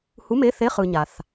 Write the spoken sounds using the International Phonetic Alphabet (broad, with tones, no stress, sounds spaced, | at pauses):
h u˧˥˧ m e˧˥˧ θ e˧˥˧ χ ɯ˨ ɲ a˨ θ